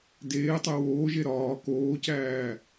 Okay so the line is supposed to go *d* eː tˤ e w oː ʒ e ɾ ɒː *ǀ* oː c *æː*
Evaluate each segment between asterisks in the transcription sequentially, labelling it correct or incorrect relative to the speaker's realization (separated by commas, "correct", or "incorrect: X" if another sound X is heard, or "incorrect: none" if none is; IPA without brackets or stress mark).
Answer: correct, incorrect: k, correct